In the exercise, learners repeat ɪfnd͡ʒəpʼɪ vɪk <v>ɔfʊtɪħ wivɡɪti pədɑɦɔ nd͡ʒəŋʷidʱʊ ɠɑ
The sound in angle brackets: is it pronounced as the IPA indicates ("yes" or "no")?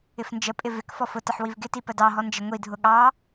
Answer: no